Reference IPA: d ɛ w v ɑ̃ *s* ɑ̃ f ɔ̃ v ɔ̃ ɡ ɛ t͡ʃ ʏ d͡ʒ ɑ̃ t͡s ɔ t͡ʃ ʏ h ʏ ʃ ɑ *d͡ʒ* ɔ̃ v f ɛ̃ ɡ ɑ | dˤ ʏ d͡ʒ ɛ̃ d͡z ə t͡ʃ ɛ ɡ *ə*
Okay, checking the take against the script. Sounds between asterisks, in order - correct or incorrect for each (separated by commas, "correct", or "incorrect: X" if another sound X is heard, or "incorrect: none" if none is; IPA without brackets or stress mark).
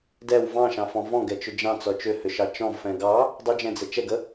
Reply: incorrect: ʃ, incorrect: t͡ʃ, correct